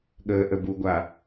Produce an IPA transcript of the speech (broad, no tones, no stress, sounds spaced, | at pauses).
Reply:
ɠ əː ʔ ə b u ɡʷ a